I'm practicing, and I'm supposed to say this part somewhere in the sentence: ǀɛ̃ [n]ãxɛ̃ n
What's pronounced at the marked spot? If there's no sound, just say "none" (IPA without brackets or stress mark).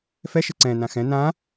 n